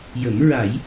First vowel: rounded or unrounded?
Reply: unrounded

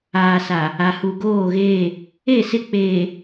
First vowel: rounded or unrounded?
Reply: unrounded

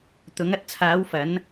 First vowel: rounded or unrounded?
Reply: rounded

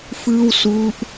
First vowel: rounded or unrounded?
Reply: unrounded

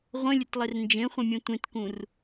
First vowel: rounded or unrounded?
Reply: unrounded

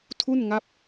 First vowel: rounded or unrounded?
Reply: rounded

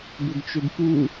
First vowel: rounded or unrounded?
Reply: rounded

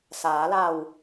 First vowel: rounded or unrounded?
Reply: unrounded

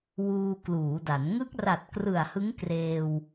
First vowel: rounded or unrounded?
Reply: rounded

